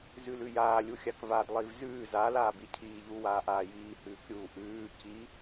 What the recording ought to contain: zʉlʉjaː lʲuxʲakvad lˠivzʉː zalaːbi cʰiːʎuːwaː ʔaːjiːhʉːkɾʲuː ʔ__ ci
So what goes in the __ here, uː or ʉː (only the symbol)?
ʉː